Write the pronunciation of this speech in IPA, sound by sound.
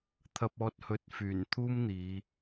t̪ʰɐ˧p̚ɔː˧t̚ hɵ˨t̚fyː˨˩n t̪ʰuː˥mn̪iː˨˧

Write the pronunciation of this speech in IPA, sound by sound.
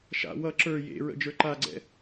ʃa̰ wʌ ǁə˞ jḛɹə̰ d͡ʒə˞ǃaɡ͡ǀɛ̰

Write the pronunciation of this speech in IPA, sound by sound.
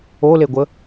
oleɡʷə

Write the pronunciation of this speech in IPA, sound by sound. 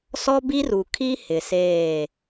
sɔ˦bi˦ru˨ kʰi˦ hɪ˨seː˦˨

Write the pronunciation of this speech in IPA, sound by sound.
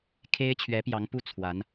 kʰe˥ɪ̯t͡ɕʰɥɛ˧˥ pjɑ˧˥ŋpu˥ t͡sʰwa˧˥n

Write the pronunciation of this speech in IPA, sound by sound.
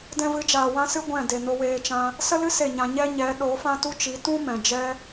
dɛ̃˧vɨ˨˦d͡ʒaː˨ wã˦sɨ˦ ɡʷɛ̃˦˨ de˨no˧weː˧ t͡ʃã˧ | sə˦lɨ˦ se˦˨ɲã˧ ɲɛ˦ɲɛ˨˦ ɗo˨˦fã˦tu˦t͡ʃi˨˦ tũ˦ mɛ̃˨ d͡ʒɛ˦

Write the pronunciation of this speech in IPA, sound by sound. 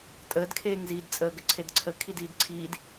tʼəːdkʰeːŋziːd t͡sʼəːɡəǀʰedǀʰə kʰidiːdǀʰiːd

